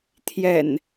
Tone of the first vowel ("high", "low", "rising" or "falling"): low